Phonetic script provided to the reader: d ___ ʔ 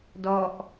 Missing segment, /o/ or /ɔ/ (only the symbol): ɔ